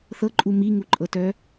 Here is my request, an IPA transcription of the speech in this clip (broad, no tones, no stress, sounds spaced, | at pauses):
θ ɤ ǃʼ u m i ŋ u ǃʼ ɤ t œ